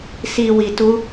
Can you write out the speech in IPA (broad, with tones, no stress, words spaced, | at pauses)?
si˨ wi˨tu˧